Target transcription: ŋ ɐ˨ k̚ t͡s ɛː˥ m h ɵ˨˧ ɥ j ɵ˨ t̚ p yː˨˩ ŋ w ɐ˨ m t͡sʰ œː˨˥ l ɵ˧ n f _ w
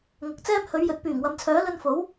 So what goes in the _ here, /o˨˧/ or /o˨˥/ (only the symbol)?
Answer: o˨˥